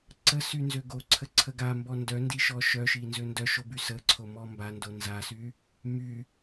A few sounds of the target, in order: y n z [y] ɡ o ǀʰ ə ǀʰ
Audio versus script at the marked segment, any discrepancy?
yes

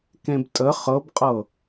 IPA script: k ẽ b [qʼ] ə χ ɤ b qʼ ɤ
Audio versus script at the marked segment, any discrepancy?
yes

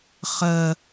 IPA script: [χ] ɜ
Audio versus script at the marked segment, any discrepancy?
no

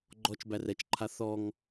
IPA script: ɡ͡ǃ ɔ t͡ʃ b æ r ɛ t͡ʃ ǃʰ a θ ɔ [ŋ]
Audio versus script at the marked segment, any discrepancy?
no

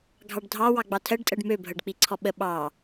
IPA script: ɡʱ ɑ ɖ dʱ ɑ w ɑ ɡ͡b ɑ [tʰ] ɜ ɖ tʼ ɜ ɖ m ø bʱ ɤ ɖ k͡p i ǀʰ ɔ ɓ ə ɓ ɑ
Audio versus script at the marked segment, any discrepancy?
no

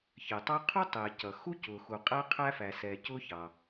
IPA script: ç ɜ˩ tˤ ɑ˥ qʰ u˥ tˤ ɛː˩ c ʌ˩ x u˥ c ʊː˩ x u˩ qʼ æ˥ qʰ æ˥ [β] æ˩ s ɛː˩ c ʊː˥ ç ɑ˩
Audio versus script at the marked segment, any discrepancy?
yes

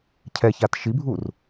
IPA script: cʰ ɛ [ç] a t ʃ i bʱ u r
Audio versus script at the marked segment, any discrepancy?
no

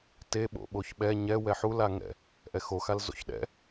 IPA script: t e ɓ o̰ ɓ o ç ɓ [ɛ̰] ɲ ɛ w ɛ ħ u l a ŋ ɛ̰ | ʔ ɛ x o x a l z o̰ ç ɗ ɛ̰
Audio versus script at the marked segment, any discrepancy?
yes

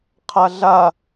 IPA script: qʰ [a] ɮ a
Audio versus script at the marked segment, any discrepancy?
no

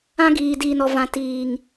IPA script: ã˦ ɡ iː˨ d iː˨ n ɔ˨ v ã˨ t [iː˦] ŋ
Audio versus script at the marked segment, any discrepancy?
yes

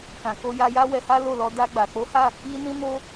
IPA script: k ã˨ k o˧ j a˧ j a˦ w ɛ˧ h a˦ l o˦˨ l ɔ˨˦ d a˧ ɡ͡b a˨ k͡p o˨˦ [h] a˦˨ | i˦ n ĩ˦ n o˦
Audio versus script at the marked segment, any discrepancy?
no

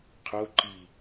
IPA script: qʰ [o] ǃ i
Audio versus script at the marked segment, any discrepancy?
no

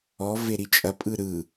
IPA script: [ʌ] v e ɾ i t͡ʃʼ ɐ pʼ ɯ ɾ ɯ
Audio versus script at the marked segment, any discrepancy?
yes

